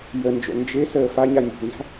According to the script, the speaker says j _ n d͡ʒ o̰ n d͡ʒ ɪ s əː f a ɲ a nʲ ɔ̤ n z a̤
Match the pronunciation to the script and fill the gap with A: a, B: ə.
B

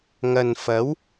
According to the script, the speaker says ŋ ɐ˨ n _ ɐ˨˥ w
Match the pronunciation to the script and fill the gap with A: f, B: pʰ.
A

